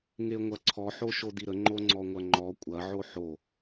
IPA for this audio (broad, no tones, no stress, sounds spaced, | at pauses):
ŋ e ŋʷ ɐ ǀʰ ɔ ħ o ʃ o d i ɾ ə ŋ͡ǃ o ŋ͡ǀ ɔ ŋʷ ɐ ŋ͡ǃ ɔ kʷʼ ɐ ʕ o ħ o